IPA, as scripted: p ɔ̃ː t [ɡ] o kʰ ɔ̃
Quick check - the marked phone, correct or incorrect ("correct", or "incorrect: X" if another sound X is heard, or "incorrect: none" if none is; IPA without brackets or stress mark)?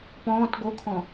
correct